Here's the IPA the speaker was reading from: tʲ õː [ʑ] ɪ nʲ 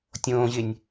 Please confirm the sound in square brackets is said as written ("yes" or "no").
yes